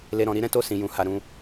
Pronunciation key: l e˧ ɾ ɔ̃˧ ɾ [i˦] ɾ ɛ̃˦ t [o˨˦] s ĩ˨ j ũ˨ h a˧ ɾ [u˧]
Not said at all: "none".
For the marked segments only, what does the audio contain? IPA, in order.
i˦, o˦˨, ũ˧

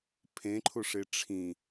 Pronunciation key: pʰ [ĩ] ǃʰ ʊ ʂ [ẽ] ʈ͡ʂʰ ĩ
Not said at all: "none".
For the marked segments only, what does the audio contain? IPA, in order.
ẽ, e

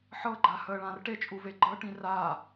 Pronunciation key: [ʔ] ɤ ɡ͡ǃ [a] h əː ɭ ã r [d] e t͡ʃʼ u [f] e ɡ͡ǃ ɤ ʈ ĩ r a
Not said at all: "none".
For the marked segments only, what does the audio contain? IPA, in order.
ħ, a, ʈ, v

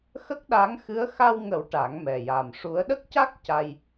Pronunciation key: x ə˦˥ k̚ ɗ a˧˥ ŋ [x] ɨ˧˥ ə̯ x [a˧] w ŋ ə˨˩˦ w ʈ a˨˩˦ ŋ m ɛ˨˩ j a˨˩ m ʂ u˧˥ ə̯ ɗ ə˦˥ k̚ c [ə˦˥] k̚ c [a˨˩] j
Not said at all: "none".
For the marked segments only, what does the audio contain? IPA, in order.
x, a˧, a˦˥, a˧

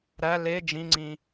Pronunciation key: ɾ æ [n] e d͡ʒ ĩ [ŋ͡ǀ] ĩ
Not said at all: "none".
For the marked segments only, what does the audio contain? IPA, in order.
l, ŋ͡ǀ

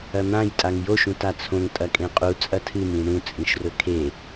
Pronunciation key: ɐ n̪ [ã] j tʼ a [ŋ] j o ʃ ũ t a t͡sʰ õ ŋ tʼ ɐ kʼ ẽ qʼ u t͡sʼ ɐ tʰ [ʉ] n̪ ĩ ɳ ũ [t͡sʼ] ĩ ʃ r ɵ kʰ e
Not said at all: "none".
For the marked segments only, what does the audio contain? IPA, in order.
ã, ŋ, ɨ, t͡sʼ

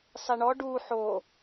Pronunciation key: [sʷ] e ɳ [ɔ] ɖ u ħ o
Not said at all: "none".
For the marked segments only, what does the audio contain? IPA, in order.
sˤ, ɔ

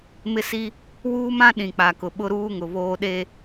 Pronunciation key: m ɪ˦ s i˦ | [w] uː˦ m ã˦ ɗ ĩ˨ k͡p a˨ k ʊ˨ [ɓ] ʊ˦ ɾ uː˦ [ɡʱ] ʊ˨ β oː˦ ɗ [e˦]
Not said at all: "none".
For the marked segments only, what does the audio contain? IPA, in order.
w, ɓ, ŋ, e˦

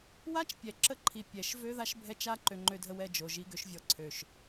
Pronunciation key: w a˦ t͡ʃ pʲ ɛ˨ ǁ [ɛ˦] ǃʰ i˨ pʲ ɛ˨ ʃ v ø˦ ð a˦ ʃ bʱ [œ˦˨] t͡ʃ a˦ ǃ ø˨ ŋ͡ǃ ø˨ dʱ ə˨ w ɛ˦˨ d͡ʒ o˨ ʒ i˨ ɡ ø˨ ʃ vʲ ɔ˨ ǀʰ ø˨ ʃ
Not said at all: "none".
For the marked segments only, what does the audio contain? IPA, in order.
ə˦, ɛ˦˨

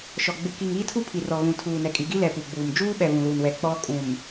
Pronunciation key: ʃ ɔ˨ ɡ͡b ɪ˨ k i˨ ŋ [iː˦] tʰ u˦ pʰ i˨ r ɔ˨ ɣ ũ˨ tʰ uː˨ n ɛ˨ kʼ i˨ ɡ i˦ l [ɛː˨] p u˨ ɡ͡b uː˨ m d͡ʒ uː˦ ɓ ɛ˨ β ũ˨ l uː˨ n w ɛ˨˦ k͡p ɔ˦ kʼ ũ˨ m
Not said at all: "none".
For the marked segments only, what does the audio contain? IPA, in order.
iː˦, ɛ˨

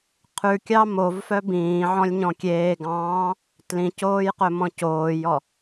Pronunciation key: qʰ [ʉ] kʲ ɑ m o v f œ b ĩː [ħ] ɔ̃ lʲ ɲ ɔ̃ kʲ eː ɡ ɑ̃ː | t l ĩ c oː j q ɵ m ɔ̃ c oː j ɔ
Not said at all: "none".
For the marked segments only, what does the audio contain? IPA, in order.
ʉ, ʕ

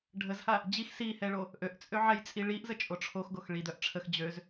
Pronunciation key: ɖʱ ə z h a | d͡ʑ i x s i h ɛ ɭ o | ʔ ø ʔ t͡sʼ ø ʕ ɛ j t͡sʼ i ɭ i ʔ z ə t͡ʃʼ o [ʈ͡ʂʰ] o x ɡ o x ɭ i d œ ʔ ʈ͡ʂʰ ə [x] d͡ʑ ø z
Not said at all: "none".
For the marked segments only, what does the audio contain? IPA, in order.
ʈ͡ʂʰ, x

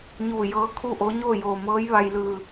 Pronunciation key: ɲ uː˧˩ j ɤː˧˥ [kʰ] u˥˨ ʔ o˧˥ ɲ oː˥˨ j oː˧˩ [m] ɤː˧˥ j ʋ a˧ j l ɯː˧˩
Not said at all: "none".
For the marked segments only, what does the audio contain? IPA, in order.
kʰ, m

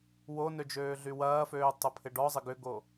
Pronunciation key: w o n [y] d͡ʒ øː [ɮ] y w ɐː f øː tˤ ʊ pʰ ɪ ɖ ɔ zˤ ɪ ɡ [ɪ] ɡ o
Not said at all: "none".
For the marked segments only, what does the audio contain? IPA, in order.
ø, ɮ, ʏ

